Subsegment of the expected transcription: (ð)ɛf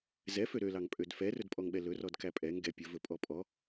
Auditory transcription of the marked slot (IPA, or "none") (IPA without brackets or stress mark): z